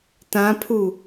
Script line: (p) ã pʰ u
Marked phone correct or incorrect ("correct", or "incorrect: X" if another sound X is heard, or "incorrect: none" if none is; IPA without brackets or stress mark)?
incorrect: t